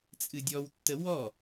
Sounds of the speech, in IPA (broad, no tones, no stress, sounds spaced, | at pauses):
t͡sʼ ɨ dʲ ɔ w tː ə w ɔ